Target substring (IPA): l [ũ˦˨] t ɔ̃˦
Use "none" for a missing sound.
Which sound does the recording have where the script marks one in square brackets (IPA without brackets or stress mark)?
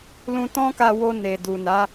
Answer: ũ˧